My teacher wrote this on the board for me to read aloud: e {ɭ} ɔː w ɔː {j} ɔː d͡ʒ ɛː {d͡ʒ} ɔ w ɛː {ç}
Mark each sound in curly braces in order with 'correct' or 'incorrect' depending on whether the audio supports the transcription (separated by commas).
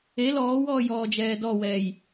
incorrect, correct, incorrect, incorrect